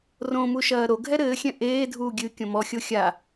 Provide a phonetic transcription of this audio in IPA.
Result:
r õ m u ʃ ɐː ɾ o ɡʱ ɛ ɾ ɘː xʲ ɛ̃ ʔ eː dʱ uː ɡʲ ɨ kʲ õ m ɔ xʲ o xʲ a

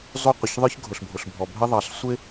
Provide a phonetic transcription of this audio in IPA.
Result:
zˤ u˥ qʷ ə˩ ç ðˤ ə˞˥ ç ɡʱ ʊ˩ ɬ bʱ ʊ˩ ɬ bʱ ɔ˩ bʱ ə˥ ðˤ ɑ˩ ɬ sʷ ɪ˥

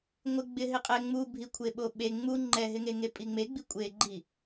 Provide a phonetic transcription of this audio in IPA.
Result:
ŋʷ ɪ ɡ͡b ɪ ɦ ɪ qʼ ɛ ŋ͡m u bʱ i kʷʰ e ɓ o ɓ e ŋ͡m u ŋ͡ǃ ɛ ɦ ɪ ŋ e ŋ e pʼ i ŋ͡m e ɡ͡b i kʷʼ e ɡ͡ǃ i

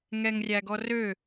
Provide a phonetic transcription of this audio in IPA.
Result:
ŋ ɛ ŋ rʲ æ ɡ ɔ r ø

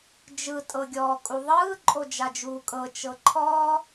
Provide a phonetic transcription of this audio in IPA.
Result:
d͡ʒ ɯ tʼ ɤ ɡʲ ɔː kʼ u ðˤ ɯː ǃʼ o d͡ʒ a d͡ʒ uː kʼ ɤ t͡ʃ ɤ ǃʰ ɔː

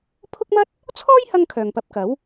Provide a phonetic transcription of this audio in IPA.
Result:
pʰ ʊ˥ k̚ m ɐ˥ t̚ | t͡sʰ ɔː˥ j h ɐ˥ ŋ kʰ œː˨ ŋ p ɐ˧ p̚ k ɐ˨˥ w

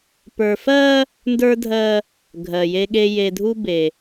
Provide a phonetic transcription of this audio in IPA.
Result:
p ə˞˨ f ɜ˦ | n d ə˞˦ dʱ ɜ˦ | ɡʱ ɜ˨ j e˦ ɠ e˦ j e˨ dʱ u˦ b e˨

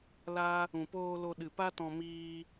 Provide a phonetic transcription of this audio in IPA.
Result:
l a˦ | ũ˨ p oː˧ l o˧ ɗ ɨ˨ p a˦ t ɔ̃˧ m iː˧

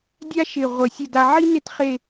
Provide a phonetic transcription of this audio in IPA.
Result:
dʲ a˥ ʃ ɪ˧˩ ʁʷ ə˧ sʲ ə˥˧ d a˧ ʕ i˥ n ɪ˥˧ t χ e˥˧

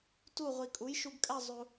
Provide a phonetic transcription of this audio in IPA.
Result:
t u˥˧ ʁʷ i˧ kʼ u˨˥ j ʃ u˧ ɡ kʼ æ˥˧ zˤ u˧

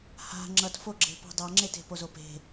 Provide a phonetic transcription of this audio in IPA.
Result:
h a̤ ŋ͡ǁ ʌ t f o ɡ͡ǁ e̤ p a̤ dˤ a ŋ͡ǁ e t e̤ p o z o p e̤

